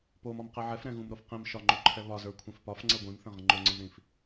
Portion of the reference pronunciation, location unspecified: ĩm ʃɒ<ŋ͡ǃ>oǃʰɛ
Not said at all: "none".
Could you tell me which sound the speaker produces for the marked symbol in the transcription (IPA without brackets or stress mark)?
ŋ͡ǃ